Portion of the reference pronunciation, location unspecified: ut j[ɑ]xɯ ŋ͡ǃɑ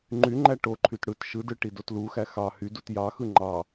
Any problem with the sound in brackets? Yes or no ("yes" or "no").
no